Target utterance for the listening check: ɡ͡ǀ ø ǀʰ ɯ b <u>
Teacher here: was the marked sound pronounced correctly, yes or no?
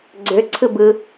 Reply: no